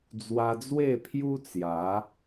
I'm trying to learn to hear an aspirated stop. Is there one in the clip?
yes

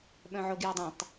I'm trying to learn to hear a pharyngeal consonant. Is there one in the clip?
yes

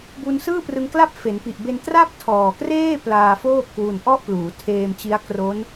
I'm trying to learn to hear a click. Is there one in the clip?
no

